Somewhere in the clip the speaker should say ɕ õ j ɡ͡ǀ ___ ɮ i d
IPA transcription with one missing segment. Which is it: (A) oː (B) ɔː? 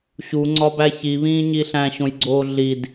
A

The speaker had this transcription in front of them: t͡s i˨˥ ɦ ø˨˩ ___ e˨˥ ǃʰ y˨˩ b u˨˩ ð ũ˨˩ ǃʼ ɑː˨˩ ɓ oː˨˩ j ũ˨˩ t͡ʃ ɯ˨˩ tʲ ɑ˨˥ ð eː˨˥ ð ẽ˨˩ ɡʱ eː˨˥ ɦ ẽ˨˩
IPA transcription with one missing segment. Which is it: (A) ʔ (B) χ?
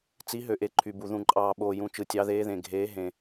A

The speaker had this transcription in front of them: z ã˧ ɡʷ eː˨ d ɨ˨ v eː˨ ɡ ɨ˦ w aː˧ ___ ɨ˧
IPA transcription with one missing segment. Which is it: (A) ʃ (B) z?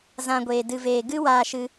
A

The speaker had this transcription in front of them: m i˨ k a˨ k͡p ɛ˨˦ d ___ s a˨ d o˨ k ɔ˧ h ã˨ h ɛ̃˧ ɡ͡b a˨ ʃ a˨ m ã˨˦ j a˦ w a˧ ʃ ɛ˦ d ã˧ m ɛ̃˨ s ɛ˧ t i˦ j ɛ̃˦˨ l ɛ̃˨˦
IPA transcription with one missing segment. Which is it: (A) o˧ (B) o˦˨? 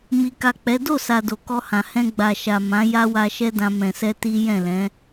B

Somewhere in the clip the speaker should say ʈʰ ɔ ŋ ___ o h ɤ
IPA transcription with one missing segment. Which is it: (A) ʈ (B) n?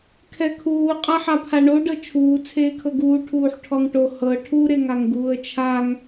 A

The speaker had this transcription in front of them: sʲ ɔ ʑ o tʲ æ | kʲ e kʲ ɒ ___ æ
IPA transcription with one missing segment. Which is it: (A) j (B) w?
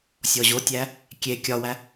B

